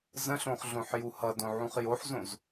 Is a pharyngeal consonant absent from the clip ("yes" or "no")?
no